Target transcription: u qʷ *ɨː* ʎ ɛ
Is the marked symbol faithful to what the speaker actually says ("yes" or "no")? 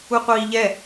no